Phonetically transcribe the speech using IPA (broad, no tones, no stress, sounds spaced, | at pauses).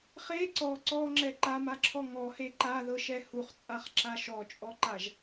χ e ǀ ɔ ǀ ɔ ŋ͡ǁ ɛ ǃ a m a ǁʰ ɔ ŋ ɔ h e ǃ a ð ɤ ʃ ɛ h u χ t͡sʼ a χ ǁ a ʃ ɔ t͡ʃʼ ɔ ǃ a ʒ